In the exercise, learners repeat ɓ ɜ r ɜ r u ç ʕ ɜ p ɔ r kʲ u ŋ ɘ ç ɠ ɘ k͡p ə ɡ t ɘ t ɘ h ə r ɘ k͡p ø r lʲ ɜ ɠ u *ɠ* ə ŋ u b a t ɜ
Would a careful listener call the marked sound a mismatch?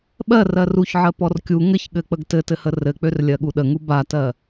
yes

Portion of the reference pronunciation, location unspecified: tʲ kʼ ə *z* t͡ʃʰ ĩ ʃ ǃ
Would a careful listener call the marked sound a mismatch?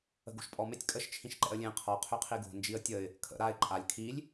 yes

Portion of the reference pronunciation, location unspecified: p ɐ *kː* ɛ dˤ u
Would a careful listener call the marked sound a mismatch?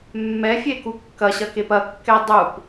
no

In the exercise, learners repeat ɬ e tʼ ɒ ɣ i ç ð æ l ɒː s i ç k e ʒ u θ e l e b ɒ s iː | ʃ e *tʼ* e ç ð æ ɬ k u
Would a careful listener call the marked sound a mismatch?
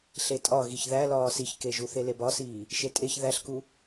no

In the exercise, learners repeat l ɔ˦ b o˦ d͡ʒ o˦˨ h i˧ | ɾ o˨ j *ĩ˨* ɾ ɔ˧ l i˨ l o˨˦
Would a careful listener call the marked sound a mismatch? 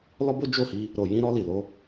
yes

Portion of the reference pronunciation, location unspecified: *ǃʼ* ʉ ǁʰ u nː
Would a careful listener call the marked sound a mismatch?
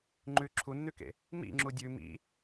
yes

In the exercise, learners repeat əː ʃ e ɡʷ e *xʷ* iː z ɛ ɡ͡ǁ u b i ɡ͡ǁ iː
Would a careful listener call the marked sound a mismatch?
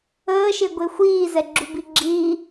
no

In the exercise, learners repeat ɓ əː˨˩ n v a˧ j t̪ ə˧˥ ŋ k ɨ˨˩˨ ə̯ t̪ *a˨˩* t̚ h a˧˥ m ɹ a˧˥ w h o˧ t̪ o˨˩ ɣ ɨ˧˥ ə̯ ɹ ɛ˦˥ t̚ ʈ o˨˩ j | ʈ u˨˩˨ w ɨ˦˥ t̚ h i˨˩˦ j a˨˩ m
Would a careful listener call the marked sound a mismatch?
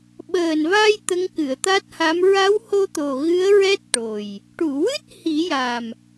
yes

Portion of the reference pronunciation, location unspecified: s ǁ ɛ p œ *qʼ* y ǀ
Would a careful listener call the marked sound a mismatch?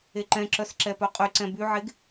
no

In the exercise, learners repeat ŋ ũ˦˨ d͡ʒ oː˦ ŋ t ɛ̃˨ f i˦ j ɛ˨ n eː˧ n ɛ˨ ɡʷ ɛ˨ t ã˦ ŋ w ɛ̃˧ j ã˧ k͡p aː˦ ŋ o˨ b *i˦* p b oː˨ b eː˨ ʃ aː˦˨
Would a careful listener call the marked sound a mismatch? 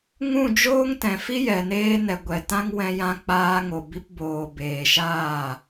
yes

